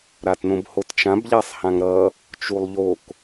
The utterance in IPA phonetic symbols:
ɾ a t n õ b h o t t͡ʃ ã b ʎ a sˤ h ã ŋ ɾ ʌ | t͡ʃ u lˠ ʎ o k

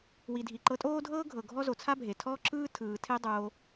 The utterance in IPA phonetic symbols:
w i˨ dʱ i˨ ǃ ɤ˧ tʼ oː˦ dʱ ɤː˦ ɡʱ ɤ˨ ɡʱ ɔ˦ z o˨ t͡sʰ a˦ bʱ e˨ tʰ ɔː˦ ǁ ɯː˦ tʰ ɯː˨ tʰ e˦ dˤ oː˧

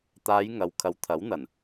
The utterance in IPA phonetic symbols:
t̪ aː˨˧ j ŋ ɐ˨ w kʰ ɐ˨˧ w t̪ʰ ɐ˨˥ w n̪ ɐ˨˩ n

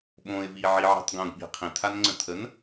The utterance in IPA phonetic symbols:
ɓ õ ɪ̯ v i ʕ i ʕ i̤ tˤ ɡ õ ɡ ɓ i̤ qʰ ĩ tʰ a n ŋ͡ǀ ə̃ tʰ ə n

